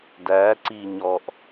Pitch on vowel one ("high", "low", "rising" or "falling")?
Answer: rising